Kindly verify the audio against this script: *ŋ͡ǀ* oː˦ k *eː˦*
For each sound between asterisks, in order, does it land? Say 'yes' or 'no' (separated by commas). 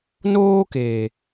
no, no